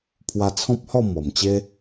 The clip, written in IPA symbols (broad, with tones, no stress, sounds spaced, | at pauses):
pʰ w a˧ t͡sʰ ɔ̃˦ p̚ h ɔ˥˧ m ɔ˨˩ m t͡ɕ e˦